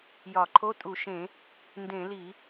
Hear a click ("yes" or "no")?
yes